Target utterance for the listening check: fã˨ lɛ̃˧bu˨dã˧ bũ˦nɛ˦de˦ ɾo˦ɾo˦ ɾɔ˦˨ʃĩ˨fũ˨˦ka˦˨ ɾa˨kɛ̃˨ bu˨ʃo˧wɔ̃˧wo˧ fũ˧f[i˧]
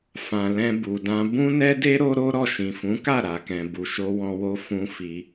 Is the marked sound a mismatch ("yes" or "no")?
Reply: no